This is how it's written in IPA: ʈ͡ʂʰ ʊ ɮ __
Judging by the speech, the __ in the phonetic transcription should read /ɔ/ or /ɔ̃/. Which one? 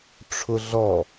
ɔ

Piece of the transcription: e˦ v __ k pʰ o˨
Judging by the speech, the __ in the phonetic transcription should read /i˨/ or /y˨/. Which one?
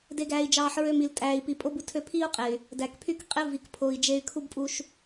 i˨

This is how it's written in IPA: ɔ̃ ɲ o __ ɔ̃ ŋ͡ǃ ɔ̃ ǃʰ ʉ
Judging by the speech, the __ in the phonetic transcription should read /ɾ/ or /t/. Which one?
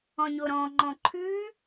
ɾ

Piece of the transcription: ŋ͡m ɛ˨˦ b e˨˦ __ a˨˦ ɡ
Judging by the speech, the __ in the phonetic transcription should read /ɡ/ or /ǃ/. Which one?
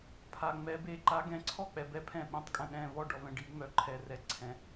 ǃ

